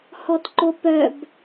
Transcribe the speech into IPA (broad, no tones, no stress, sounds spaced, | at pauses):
h ɔ t ǃ o p œ b